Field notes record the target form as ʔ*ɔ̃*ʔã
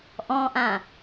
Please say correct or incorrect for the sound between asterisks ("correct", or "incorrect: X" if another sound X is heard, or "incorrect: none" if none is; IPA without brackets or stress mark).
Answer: correct